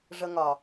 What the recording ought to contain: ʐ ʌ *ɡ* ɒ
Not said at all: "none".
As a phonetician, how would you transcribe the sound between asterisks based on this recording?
ŋ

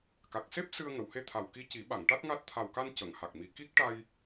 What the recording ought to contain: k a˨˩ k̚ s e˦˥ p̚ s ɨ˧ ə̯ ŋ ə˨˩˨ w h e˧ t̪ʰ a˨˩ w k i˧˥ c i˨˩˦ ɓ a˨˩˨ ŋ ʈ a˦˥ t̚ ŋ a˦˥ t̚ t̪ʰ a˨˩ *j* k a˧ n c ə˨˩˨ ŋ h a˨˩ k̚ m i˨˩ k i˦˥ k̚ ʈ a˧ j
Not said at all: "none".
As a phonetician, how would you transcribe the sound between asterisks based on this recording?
w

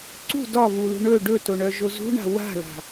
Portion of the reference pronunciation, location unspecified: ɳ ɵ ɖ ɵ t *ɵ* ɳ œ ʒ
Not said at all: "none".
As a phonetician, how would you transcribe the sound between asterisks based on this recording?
o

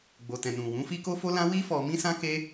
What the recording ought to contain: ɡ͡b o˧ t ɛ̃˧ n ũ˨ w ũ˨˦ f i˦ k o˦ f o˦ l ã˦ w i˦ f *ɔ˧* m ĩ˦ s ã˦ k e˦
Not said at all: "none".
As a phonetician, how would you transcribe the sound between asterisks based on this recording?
ɔ˧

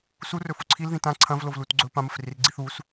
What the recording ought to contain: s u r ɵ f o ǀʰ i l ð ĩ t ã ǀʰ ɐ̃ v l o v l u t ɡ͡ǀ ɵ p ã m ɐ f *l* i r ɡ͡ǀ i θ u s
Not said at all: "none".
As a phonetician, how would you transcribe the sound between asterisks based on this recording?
r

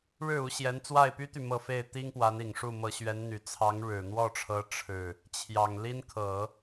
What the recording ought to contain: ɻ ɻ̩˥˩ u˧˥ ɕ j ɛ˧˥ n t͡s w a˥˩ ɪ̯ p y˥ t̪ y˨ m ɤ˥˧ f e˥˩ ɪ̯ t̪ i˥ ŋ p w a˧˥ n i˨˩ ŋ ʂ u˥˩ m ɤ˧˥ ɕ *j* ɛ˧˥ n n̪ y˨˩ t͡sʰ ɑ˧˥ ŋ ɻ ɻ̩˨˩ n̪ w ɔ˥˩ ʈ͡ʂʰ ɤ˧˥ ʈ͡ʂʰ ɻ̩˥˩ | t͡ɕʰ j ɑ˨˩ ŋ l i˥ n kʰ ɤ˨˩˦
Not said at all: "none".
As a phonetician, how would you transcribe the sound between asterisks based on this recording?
ɥ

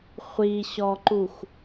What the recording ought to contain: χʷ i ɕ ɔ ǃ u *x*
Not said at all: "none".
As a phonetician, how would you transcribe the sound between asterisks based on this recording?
x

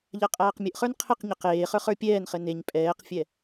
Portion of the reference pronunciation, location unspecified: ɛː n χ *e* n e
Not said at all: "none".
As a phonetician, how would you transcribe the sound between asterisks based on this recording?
ɘ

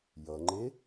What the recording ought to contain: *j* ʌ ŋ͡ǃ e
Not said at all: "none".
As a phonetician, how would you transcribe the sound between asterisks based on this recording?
j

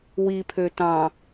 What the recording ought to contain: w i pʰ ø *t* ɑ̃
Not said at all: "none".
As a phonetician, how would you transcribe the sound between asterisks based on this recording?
t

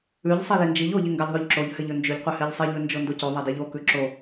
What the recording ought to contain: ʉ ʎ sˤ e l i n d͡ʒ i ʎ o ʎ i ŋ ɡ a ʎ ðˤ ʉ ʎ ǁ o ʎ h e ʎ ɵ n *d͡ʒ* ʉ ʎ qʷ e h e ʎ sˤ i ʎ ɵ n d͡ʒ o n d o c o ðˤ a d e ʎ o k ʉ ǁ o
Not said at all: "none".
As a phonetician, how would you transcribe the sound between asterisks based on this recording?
d͡ʒ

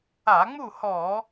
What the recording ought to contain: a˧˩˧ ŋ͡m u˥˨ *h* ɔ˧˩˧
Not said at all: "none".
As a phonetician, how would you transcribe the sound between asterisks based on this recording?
h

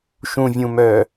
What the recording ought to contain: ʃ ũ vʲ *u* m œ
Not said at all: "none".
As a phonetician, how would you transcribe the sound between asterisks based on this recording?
ũ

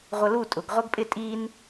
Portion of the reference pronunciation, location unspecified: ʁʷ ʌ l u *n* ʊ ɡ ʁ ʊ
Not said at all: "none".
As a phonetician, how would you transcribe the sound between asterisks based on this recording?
tʼ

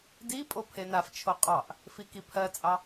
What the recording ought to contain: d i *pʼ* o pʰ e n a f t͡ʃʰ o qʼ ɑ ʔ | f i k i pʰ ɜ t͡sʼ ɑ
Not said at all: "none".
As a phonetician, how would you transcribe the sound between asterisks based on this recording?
pʼ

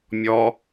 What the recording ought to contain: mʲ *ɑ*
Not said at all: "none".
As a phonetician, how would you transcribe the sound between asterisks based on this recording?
ɔ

